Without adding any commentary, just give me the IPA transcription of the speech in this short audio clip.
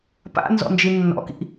pa̰ nzɔ̰nd͡ʒinːɔ̰kḭ

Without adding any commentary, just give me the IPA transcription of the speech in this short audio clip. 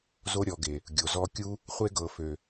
zo˧ɾʲɔ˨ɡe˨ | ɡʲo˨zɔ˧kʲu˦ | χʷe˧ɡɤ˨fø˨

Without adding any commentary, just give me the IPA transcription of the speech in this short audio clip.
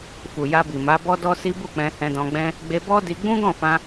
fu˨ja˧bi˨ ma˨˦bɔ˦ dɔ˦si˦ bu˦˨k͡pɛ̃˧ hɛ̃˧dɔ̃˧ɡ͡bɛ̃˦ | ɡ͡be˧bɔ˦di˧ ɡ͡bũ˦ ɡɔ̃˦˨fã˧

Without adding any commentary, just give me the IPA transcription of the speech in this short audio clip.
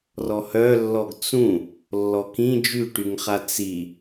rɔhœlːɔɡ t͡sũ | lːɔkĩ d͡ʒyʈyŋχa t͡si

